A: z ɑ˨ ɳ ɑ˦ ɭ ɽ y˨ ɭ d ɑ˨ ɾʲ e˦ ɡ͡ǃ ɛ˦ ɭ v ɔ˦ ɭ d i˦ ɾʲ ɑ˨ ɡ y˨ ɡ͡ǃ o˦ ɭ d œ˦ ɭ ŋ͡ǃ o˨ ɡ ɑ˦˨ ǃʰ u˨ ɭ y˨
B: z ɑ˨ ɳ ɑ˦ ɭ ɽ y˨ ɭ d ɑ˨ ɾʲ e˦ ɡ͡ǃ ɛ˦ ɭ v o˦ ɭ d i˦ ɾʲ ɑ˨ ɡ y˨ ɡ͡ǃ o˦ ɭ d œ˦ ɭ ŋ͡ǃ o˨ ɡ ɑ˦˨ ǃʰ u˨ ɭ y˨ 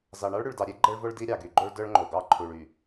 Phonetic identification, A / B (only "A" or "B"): B